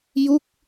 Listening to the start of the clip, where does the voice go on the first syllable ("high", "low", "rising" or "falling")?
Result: falling